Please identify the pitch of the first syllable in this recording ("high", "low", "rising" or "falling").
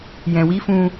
low